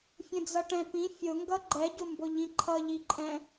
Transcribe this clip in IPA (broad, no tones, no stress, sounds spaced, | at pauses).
fʲ ə̃ d͡z ʌ ʈ ɛ̃ p ĩ fʲ ʊ ŋ ɡ ʌ ɡ͡ǃ ɛ ɟ ʊ m b ʊ ʎ ĩ ǃʰ ʌ ʎ i ǃʼ ɛ̃